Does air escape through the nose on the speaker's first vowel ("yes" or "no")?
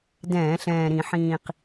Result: yes